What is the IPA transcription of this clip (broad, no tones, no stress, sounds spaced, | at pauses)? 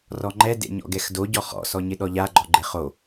r ɔ ŋ͡ǃ ɛ d ḛ ɲ ɔ̰ ɡ ɛ x d o ɟ ɔ χ ɔ̰ s ɔ ɲ ɪ ɗ ɔ ʎ a ɡ͡ǃ ɔ ɡ͡ǃ e χ o